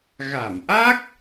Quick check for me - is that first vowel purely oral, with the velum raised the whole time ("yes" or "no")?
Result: yes